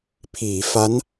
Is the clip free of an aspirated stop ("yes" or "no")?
no